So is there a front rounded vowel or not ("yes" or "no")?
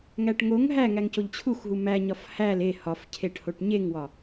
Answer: no